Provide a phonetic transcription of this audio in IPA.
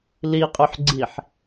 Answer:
l i qʼ y ħ ɡ͡ǀ i ħ

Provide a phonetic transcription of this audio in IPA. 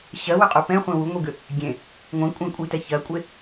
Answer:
ɕ ɜ w ʏ qʼ u p ɛ̃ χʷ ẽ w u ŋʷ i ɡ ʏ | ɡʲ ẽ | ŋʷ ẽ kʷʼ ẽ kʷʼ i t ɛ ç ɜ kʷʼ e

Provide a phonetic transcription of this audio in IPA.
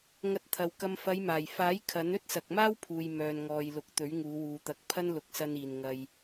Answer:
ŋ ɐ˧ t̚ t̪ʰ ɐ˨ w k ɐ˧ m f ɐ˨˧ j m aː˨˩ j f aː˨˥ j kʰ ɐ˨˥ n ɵ˥ t̚ s ɐ˨ k̚ m aː˥ w pʰ uː˨ j m œː˧ n ŋ ɔː˧ j l ʊ˧ k̚ t̪ ɵ˨˥ ɥ ŋ uː˨˧ w uː˨ t̪ ɐ˨˥ k̚ pʰ ɐ˥ n l ʊ˨˥ k̚ s ɐ˧ n iː˨ n ŋ ɐ˧ j

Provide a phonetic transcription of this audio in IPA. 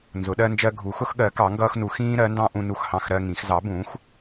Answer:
n z ʊ˨˥ ɗ ɜ˦ n d͡ʒ ɜ˦ ɡʱ u˨˥ x ʊ˦ x ɠ ɜ˨˥ k ɑ˨˥ ŋ ɡ ʌː˦ x n u˨˥ x ĩː˦ ɾ ɜ˨˥ n d ɑ̃˦ ʔ ũ˦ n u˦ x h ɑ̃˦ x ɾ ɜ˦ ŋ ĩ˨˥ x z ɑ˨˥ b ũː˨˥ x

